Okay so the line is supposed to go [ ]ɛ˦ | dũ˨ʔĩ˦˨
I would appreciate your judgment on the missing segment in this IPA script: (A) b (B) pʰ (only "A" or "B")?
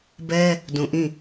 A